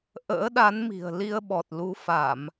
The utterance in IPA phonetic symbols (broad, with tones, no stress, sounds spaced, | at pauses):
ʔ ə̰ː˧˥ ɗ a˨˦ n m i̤˨˩ ə̯ l i˧ ə̯ ɓ ɔ˨˩ t̚ l u˨˦ f a˧˩˨ m